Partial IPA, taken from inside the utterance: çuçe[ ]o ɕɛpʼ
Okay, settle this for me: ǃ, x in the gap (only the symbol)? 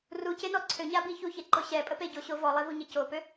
ǃ